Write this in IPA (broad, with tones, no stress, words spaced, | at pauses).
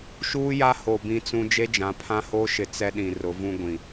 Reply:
ʃuː˦ja˦ho˨ bĩ˦t͡sũ˦ d͡ʒe˦d͡ʒã˨˦ pʰã˦ho˦ʃɪ˨ t͡sɛ˦ɗĩ˨ rʊ˨˦vũ˦ɡʷĩ˨